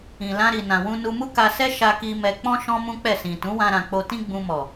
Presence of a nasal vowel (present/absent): present